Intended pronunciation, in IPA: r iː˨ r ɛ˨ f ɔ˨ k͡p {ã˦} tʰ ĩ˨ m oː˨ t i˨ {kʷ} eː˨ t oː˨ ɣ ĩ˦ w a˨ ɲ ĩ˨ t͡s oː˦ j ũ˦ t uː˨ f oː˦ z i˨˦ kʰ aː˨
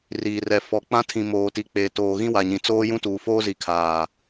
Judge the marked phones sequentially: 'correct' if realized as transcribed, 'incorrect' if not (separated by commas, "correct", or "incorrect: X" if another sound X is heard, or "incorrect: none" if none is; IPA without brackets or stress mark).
correct, incorrect: k͡p